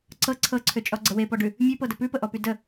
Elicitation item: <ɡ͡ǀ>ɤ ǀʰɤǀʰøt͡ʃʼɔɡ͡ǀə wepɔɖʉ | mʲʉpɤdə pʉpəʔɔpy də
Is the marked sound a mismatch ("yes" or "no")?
yes